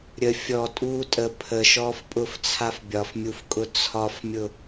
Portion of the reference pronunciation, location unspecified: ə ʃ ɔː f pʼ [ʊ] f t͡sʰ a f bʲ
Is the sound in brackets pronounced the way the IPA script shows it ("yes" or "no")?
yes